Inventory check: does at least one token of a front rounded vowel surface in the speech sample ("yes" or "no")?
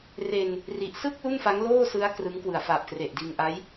no